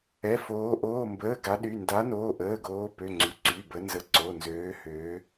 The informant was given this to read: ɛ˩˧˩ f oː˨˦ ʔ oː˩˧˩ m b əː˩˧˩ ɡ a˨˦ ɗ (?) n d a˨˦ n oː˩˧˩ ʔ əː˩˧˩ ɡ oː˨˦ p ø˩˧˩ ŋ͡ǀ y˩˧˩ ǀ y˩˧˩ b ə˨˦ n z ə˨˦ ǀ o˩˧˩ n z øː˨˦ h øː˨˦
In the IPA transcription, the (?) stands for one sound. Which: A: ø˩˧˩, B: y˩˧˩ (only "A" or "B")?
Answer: B